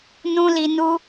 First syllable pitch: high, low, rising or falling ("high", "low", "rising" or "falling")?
high